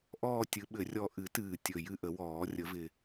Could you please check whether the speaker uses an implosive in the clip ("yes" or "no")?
yes